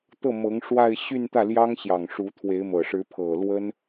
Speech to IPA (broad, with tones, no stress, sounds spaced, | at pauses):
t̪ ɤ˥˩ m ɤ˧˥ ŋ ʂ w a˥˧ ɪ̯ ɕ y˥˧ n t̪ ä˥˩ l j ɑ˥ ŋ ɕ j ɑ˨˩ ŋ ʂ u˧˥ t̪ʰ w e˧˥ ɪ̯ m ɤ˨˩ ʂ ɻ̩˧˥ pʰ ɤ˨˩ l w ə˥ n